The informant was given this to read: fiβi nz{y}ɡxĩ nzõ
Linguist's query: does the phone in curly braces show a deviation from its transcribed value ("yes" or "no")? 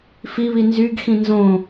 no